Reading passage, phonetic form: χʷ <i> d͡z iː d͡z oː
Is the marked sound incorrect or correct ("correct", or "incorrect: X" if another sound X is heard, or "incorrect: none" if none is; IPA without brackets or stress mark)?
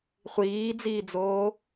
incorrect: iː